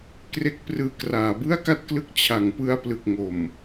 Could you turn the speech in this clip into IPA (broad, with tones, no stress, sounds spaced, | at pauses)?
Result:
k r e˦˥ k̚ p r ɯː˧ k r aː˩˦ b ɯ˥˩ a̯ k a˥˩ t̚ k l ɯ˦˥ k̚ t͡ɕʰ a˩˦ ŋ p ɯ˧ a̯ p l ɯ˨˩ k̚ ŋ o˨˩ m